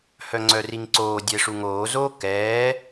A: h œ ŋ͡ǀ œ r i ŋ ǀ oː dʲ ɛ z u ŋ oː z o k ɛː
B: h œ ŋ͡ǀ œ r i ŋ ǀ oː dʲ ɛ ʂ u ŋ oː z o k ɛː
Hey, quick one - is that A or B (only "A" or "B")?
B